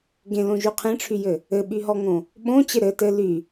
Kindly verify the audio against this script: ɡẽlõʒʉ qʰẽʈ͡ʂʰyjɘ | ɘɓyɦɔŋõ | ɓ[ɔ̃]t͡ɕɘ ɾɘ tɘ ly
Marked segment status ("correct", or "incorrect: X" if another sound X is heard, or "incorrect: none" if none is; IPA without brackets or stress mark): incorrect: õ